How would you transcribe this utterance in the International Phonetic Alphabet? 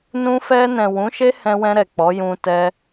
nũ˧fɛ˧nɛ̃˨ wũ˨˦ʃe˦hɛ̃˧wɛ̃˧ ɾɛ˨k͡pɔ˨˦ jũ˧ tɛ˧

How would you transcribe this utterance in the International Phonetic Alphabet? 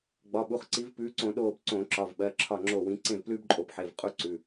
ɡ͡bɒ˩˧˩ɓu˩˧˩χǀi˨˦vpʉː˨˦ ǀõ˧˩˧ɗoː˧˩b ǀõ˧˩˧ǁɒ˩˧˩vɓɜ˩˧˩ ǁʰɒ˧˩ŋ͡ǁo˧˩ wĩ˨˦ ǀẽ˥˩vplʉː˥bǃʼo˧˩b ħe˩˧˩v qʼu˥ǀʉ˩˧˩

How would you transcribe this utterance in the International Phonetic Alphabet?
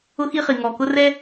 ʊ˦xi˦χi˩ ŋɔ˩kʊ˦ rɛ˥

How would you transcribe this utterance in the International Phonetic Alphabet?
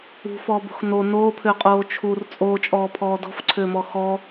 ṳfɔːbo̤x no noːpʰʏːqʼoː t͡ʃʰur t͡sʼoːt͡ʃʼɔːpʰɔː dɔ̤fǀʰʏːmɔ xɔ

